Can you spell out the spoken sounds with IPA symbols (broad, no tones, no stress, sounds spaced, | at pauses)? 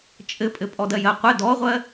t͡ʃʼ ɘ pʼ ɘ pʼ ɔ d ɜ j ɜ qʷ ɘ d ɔ ʁʷ ɜ